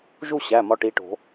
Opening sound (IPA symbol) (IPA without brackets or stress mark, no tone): ʒ